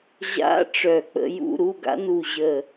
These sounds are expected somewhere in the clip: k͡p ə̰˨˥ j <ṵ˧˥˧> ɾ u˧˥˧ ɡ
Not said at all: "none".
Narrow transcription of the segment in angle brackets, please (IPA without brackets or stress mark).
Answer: ṵ˧˥˧